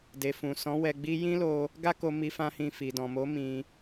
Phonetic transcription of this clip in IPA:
de˨fũ˨ sɔ̃˨˦ wɛ˧ɡ͡bi˦ jĩ˦lo˧ | ɡa˦ko˧mi˧ fã˦hĩ˧ fi˨dɔ̃˨mo˨˦ mĩ˧

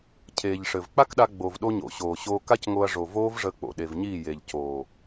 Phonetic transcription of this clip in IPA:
cʰeː˨ʎʂɘ˨v k͡pa˦kɗa˧ɡ͡bo˨vɗo˧ ɲo̰˨ ɕoː˨ɕoː˧ ka˦cŋo˧ɐ̯ʐo˨ voː˦vʐəː˧k͡po̰˨ ɗe˨vɲiː˦˨ je˨ʎ coː˨

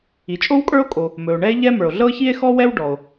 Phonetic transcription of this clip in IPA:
i˩t͡ʃʼo˥wkʼə˞˥o̯ kʼo˩ | mɵ˩o̯ɳɛ˥e̯ʎɛ˥ mə˞˩o̯ɮɤ˥çi˥e̯ xɔ˥wɛ˥w ɖɔ˩o̯

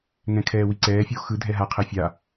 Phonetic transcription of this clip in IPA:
ŋɛ̃kʰɛːwiǀɛː fʲoxɯ dʱɛɦa qʰefʲa

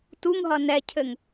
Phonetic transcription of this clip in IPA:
tuŋɦʌ nɛcʰɘŋ

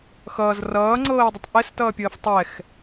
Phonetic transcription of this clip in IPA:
xʌːz rʌːŋ͡ǀɤːɪ̯dˤətˤ ʔɛstʌːpʲəːf tˤɛx

